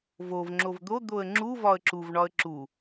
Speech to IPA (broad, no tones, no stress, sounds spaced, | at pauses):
v o v ŋ͡ǁ o v d̪ o d̪ o ə̯ ŋ͡ǁ u v ɒ ə̯ ǁ u v ɳ ɒ ə̯ ǁ u